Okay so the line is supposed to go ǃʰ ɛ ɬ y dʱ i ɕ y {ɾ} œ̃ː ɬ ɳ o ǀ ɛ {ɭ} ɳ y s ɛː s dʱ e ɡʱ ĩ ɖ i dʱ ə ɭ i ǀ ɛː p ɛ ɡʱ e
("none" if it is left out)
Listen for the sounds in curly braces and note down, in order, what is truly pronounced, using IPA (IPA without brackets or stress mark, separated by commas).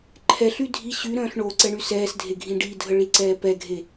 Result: ɾ, none